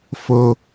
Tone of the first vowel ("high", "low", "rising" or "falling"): high